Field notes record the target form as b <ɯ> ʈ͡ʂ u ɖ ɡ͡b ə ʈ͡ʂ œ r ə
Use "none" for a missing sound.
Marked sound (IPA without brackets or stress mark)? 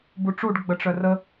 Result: u